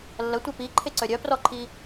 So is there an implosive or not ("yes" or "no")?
no